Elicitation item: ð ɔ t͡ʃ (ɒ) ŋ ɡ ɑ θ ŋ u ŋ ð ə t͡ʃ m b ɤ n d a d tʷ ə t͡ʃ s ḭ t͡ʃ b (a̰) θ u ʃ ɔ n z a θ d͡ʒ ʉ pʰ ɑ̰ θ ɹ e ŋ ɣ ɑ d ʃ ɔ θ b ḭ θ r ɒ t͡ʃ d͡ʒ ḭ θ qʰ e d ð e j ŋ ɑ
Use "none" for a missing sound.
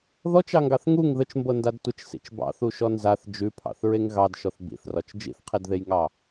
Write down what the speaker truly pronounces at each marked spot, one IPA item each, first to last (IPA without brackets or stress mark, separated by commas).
ɑ, ɑ̰